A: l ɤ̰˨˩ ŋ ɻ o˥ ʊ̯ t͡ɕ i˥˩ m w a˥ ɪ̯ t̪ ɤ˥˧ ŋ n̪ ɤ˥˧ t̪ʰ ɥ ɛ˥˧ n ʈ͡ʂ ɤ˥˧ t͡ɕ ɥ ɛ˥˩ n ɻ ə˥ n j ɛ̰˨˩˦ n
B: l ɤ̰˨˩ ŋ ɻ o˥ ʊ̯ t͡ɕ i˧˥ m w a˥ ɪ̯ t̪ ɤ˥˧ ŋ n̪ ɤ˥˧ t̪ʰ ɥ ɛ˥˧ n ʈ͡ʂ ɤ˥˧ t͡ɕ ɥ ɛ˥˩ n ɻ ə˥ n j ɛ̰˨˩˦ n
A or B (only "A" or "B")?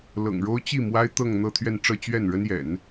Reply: A